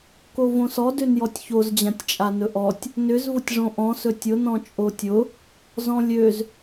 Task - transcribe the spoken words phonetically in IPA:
kovõsɔdøn jɔtʲçozd͡ʑãtʲt͡ʃʼa nɵʔɔtʲ | nʏzvʊtʲʐõ ʔɔ̃sɵ tʲʊnɔ̃ t͡ʃʼotʲʊ | zɔ̃lʲøz

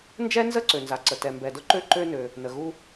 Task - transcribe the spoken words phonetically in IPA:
nd͡ʒɛ˥nzə˥ ǀø˩nza˩ǀə˩ tɛ˩mbɛ˩dʊ˥ǃø˥ ǃø˥nø˩ | nə˩ɣu˥

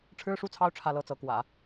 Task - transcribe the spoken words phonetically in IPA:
ʈ͡ʂʰɻ̩˥ʂu˥˩t͡sʰɑ˥ʊ̯ ʈ͡ʂʰä˥˧lɤ˥˩t͡sɤ˧˥kwä̰˨˩˦

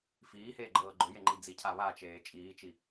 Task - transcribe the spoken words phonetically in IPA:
fiːheːɡ͡ǃɤː ɡ͡ǃʊjeŋ͡ǃi d͡zicʰa βat͡ʃeː t͡ʃʼiːt͡ʃi

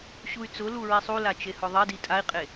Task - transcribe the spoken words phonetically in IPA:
ɕuy̯t͡sʊlu ɹisˤula t͡ʃehʊðˤedi tʼai̯qʼe

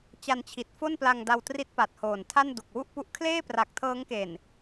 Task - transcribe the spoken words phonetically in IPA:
t͡ɕa˧nt͡ɕʰi˨˩t̚ fo˥˩npla˧ŋ da˧wtri˦˥t̚ pa˨˩t̚hoː˨˩ntʰa˥˩n du˨˩k̚wu˥˩ʔpu˦˥ʔ kʰleː˥˩pra˨˩k̚tʰɤː˦˥ŋke˨˩n

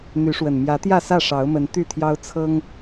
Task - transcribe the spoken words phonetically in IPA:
n̪y˨˦ʂwə˨˩n mjä˨˦t̪jä˥˨sä˥˨ ʂɑ˨˦ʊ̯mə˨˦n t̪y˥˨t̪ʰjɑ˦ʊ̯ t͡sʰɤ˦ŋ

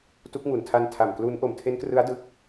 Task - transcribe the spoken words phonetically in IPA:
tu˦˥k̚ŋu˨˩ntʰa˧n tʰa˨˩mklu˦˥n ʔo˨˩mtʰe˦˥nkrɯ˦˥a̯ dɯ˦˥k̚

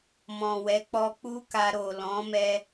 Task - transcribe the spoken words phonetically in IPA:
mɔ̃˨wɛ˨˦k͡pɔ˧ k͡pu˦ka˧ ɾo˨ lɔ̃˨˦mɛ˧

